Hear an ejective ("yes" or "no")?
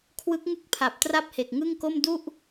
no